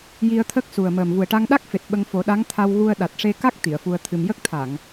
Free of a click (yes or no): yes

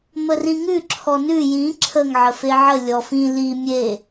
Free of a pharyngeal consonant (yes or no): no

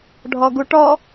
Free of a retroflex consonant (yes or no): no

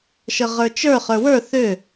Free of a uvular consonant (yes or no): no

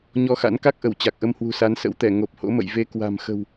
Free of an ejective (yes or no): yes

